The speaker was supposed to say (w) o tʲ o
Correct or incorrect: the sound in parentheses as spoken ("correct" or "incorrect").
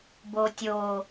incorrect